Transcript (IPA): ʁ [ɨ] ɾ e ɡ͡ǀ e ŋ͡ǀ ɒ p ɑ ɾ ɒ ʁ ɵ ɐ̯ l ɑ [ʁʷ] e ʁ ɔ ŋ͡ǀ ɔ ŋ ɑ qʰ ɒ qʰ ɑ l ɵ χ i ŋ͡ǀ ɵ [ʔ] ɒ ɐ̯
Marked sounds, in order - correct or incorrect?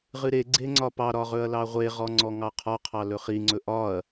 correct, correct, correct

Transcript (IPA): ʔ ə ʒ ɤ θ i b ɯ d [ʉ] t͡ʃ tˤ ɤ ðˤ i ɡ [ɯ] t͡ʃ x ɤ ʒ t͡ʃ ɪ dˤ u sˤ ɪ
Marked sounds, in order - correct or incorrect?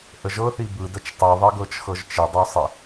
incorrect: ə, incorrect: ɤ

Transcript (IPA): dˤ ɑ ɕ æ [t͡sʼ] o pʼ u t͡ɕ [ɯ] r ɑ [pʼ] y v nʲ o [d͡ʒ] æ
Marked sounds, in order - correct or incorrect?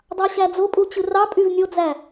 incorrect: d͡z, correct, correct, incorrect: d͡z

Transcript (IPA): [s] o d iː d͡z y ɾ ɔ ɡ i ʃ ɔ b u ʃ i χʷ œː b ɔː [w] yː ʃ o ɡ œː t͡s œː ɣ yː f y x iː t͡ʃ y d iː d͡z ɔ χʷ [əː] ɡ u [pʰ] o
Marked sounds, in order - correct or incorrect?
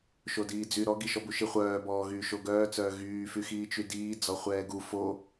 incorrect: ʃ, incorrect: ɣ, incorrect: ɛː, incorrect: f

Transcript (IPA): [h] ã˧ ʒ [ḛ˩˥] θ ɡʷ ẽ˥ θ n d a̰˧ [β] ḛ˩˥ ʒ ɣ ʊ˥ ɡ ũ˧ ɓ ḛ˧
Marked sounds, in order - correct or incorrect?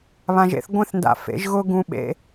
incorrect: β, correct, incorrect: f

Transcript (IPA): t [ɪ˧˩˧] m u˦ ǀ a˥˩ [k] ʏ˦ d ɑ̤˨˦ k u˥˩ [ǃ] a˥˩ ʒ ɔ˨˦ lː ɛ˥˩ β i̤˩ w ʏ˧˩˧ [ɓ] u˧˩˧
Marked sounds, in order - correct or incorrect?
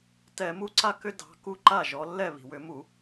incorrect: ɛ˧˩˧, correct, correct, incorrect: m

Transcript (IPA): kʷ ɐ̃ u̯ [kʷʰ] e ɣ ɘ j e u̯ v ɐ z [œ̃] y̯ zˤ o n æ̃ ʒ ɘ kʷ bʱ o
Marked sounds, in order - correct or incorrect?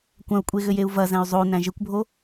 incorrect: kʷʼ, incorrect: æ̃

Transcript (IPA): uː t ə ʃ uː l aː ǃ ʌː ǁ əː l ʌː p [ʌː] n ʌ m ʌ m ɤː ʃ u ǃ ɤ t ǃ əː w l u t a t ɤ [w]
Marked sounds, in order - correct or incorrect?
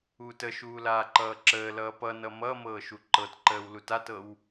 incorrect: ʌ, correct

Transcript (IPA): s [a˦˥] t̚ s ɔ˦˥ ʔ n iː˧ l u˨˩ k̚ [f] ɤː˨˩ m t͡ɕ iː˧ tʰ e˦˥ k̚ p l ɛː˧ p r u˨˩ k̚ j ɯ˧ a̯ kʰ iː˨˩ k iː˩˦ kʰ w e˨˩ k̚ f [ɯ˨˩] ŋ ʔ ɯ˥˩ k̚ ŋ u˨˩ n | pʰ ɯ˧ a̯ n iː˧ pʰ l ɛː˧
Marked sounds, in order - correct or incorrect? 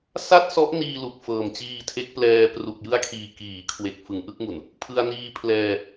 incorrect: a˥˩, correct, incorrect: ɯ˩˦

